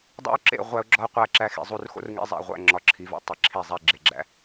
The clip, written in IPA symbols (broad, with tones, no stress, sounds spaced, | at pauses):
dˤ æ̰˦ ʊ̯ ǁ ḛ˦˨ ʁʷ æ˦ ʊ̯ ɡ͡ǁ ɒ˦ ʊ̯ qʷ æ˦˨ ǁ æ˦ x ḭ˨ zˤ u˦ r x o̰˦ r ŋ ḛ˦ zˤ æ̰˨ ʁʷ æ̰˦˨ ŋ͡ǁ ɒ˨ ǁʰ i˨ v o̰˦ tˤ i˨ ǁʰ i˦˨ zˤ æ˦ ɡ͡ǁ e˨ ɡ͡ǁ æ̰˦